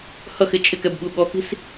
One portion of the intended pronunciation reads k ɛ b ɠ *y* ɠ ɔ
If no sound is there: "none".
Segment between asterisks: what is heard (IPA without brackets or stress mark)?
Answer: u